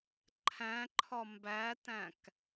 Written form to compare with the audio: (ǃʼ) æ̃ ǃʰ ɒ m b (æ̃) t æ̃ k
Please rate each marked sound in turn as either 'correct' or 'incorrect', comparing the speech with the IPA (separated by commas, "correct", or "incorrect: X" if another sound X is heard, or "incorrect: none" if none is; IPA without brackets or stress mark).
incorrect: ǃʰ, incorrect: æ